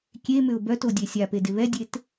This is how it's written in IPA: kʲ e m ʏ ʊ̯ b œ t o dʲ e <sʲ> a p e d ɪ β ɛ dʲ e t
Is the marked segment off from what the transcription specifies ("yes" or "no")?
no